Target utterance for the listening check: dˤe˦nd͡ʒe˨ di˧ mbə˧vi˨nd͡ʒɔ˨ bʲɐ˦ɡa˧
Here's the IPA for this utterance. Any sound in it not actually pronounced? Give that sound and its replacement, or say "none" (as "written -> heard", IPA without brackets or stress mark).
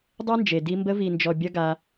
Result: none